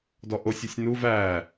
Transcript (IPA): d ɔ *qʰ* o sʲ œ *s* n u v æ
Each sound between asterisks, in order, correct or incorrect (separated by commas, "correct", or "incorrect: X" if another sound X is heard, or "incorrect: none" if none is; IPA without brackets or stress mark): incorrect: ʔ, incorrect: sʲ